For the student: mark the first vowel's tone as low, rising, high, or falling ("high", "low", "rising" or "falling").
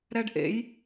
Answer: high